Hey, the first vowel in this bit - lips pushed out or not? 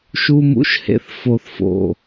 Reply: yes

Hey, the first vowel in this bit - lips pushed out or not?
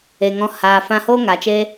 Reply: no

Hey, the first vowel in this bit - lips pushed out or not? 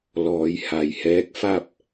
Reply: yes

